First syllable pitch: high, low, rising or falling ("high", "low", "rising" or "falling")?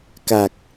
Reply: low